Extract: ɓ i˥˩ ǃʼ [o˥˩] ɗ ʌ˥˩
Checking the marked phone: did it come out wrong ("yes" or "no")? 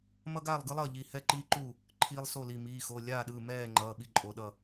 yes